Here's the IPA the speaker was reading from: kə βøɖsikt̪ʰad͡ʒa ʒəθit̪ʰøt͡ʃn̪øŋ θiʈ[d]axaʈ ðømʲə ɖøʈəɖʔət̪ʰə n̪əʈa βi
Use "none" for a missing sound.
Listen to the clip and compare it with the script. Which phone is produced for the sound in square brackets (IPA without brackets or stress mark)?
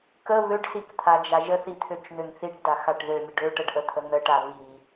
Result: d